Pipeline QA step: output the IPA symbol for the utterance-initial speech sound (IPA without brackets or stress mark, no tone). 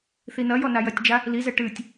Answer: θ